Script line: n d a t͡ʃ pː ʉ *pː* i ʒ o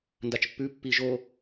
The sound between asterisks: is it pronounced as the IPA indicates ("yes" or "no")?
yes